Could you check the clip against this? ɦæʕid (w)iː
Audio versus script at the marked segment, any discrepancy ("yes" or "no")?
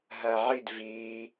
yes